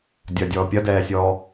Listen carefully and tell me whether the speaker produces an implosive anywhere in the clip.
no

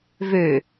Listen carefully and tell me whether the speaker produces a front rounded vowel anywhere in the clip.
yes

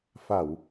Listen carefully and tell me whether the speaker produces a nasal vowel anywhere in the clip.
no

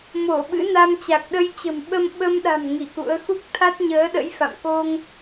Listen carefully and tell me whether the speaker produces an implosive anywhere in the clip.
yes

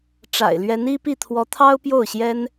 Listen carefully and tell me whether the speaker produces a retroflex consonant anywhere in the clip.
yes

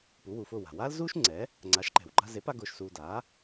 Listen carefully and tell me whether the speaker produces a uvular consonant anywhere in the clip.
no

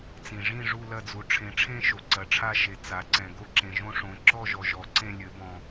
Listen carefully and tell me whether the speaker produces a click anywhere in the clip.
yes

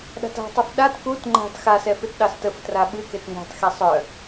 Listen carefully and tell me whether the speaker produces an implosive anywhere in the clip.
yes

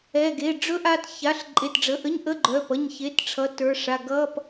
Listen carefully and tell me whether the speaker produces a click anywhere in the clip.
yes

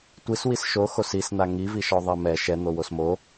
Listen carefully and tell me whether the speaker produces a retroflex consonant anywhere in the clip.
no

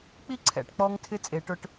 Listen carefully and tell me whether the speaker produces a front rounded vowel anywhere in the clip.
no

